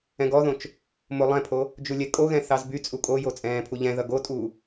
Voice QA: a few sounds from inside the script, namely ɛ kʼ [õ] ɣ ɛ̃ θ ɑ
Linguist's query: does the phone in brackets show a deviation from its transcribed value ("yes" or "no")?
yes